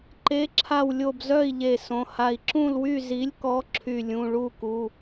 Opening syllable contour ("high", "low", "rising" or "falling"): rising